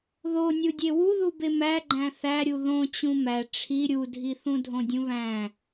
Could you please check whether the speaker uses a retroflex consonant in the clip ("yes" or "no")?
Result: yes